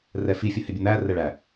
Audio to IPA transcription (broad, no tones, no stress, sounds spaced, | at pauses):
r ɛ f i fʲ ə h ɪ bʲ ə n̪ æ r ɛ ɭ æ